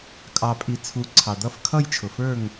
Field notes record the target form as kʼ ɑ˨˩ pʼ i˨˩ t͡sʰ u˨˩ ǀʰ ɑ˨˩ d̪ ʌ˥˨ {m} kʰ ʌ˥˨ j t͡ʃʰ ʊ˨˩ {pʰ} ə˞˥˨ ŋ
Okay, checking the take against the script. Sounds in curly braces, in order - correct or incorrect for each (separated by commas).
incorrect, incorrect